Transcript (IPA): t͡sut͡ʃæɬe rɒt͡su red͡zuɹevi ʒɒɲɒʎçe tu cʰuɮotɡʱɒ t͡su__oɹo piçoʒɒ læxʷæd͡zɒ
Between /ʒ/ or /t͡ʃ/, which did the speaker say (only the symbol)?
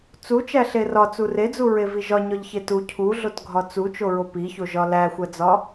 t͡ʃ